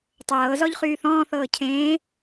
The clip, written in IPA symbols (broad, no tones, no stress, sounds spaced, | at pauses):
tˤ ɤː z ɔ ʎ χ yː θ ɔ̃ː θ ɤː cʰ ẽː